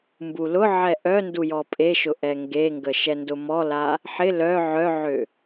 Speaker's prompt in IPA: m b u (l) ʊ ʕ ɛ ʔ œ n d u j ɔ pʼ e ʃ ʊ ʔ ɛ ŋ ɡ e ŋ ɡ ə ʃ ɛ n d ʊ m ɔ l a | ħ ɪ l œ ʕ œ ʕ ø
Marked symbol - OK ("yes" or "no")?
yes